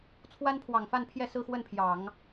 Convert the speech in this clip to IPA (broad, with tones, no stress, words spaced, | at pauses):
t͡sʰwa˥npʰwɑ˨˩ŋfa˥˧npʰjɛ˥˧ sɹ̩˥˧xwə˥˩npʰjɑ˨˩˦ŋ